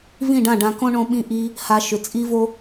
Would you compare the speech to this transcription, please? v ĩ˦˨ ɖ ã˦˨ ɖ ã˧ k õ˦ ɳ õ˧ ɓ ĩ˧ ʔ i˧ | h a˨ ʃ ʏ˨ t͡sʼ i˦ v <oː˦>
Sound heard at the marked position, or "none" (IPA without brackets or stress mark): o˦